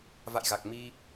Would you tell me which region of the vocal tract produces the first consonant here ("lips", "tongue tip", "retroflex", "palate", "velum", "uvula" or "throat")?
lips